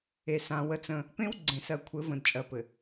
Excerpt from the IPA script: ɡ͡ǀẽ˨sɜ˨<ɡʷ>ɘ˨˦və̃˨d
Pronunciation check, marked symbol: incorrect: kʷʰ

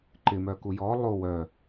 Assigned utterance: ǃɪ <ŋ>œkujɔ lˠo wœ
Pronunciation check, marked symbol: incorrect: m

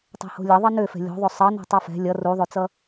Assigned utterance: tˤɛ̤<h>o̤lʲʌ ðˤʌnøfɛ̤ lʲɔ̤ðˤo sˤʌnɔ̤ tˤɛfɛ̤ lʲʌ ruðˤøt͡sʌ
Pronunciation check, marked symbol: correct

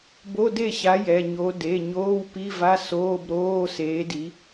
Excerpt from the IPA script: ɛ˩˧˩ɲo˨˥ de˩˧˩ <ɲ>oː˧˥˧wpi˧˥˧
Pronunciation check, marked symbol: correct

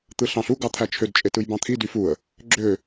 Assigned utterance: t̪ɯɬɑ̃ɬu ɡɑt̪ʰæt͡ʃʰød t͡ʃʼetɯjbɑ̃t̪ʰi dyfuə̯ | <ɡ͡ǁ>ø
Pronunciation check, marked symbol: correct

